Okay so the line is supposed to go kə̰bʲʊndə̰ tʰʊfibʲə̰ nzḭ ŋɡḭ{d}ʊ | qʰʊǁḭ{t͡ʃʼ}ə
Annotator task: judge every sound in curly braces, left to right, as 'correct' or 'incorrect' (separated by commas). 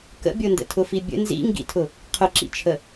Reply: incorrect, incorrect